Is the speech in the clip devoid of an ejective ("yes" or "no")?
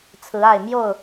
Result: yes